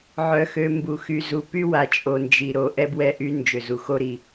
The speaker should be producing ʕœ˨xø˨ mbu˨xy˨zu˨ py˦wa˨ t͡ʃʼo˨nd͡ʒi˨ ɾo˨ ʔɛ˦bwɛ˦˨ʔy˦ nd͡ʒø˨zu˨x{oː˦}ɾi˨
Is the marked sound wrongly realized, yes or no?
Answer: yes